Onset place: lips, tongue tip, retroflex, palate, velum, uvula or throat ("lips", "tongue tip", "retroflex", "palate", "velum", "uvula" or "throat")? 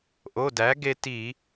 throat